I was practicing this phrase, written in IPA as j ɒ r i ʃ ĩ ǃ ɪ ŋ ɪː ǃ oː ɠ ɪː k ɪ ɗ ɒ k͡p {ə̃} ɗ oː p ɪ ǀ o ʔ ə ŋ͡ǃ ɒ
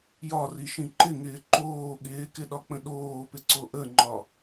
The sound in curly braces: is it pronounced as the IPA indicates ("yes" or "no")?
yes